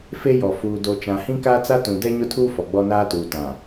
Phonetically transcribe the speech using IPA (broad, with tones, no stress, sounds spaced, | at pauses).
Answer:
f e˦ j ɔ˨ f uː˨ d o˨ t͡ʃ ã˨ h ĩ˦ k aː˦ t͡s a˦ t ũ˨ d ɛ˦ ɲ ʊ˦ tʰ uː˦ f ɔ˨ ɡ͡b ɔ˦ n aː˦ t uː˨ t ã˨